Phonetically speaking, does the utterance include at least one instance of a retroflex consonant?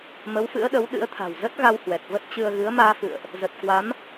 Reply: no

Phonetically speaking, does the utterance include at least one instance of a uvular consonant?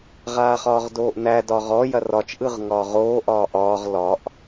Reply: yes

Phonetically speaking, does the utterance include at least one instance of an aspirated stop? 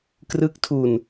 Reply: yes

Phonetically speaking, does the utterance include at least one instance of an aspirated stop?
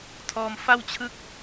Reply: yes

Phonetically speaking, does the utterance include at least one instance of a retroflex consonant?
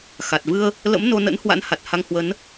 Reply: no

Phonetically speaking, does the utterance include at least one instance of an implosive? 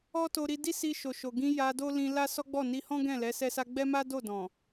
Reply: no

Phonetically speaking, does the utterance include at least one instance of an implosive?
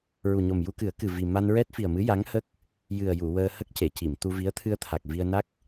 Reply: no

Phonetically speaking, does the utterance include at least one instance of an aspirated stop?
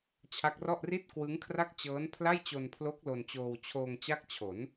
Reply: yes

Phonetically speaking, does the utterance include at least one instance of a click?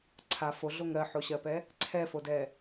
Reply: yes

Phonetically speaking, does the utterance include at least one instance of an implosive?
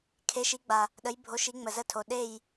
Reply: yes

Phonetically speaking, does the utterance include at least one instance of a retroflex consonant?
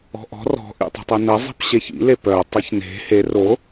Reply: no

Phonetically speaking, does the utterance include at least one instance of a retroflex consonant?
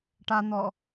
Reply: yes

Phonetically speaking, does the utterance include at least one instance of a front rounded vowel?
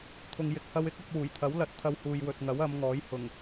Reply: no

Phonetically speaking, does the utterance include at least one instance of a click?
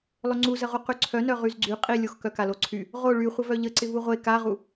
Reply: yes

